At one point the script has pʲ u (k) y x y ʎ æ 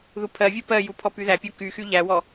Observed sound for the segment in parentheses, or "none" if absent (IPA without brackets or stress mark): k